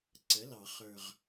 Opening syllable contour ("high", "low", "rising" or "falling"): rising